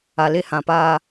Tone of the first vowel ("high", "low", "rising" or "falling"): low